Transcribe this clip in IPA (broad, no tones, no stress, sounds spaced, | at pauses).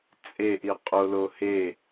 t͡sʼ e ʔ i qʼ o l o h e